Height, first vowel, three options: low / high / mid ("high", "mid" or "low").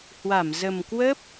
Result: low